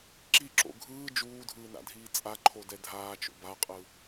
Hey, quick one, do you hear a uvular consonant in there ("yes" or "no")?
yes